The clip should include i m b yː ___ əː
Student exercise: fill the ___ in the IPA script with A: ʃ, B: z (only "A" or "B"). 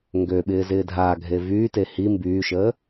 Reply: A